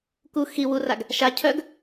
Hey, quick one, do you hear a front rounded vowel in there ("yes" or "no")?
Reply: yes